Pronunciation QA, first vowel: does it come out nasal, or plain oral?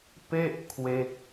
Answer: oral